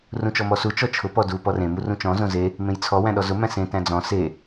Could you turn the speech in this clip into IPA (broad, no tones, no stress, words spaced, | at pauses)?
rũt͡ʃɔmɔsu t͡ʃɔt͡ʃʰʊ pɔdu pɔrẽ murũt͡ʃɔ̃ zõze | mẽjt͡sʰɔ wæ̃ɗɔzʊ mæ̃sẽ tæ̃d͡zɔ̃ se